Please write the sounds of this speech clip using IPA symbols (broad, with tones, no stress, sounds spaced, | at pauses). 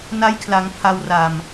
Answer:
n a˦˥ j kʰ l a˩˦ ŋ pʰ a˧ w r a˨˩ m